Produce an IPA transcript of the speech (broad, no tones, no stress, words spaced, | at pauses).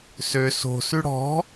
sø so̤sʉ ɽɔ̤